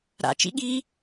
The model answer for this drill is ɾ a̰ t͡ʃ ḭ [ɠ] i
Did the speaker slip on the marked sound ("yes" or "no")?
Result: no